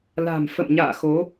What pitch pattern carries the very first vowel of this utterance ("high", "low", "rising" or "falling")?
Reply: low